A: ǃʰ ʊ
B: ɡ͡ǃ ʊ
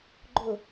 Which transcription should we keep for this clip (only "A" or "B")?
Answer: B